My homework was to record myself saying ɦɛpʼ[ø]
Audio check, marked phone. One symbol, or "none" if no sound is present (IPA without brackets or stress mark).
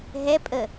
ə